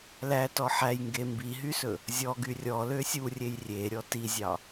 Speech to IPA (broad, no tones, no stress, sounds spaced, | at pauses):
l æ t ɔ ħ æ j ŋ ɡ e m b i ɦ y s ɵ | zʲ ɔ ɡ y rʲ ɔ l ø sʲ u rʲ e j rʲ e ɾʲ ɔ t i zʲ ɑ